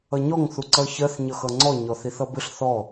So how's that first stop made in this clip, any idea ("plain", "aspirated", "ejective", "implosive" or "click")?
click